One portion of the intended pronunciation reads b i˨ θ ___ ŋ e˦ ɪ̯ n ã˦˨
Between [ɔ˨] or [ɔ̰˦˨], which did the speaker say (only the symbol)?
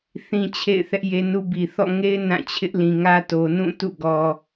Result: ɔ̰˦˨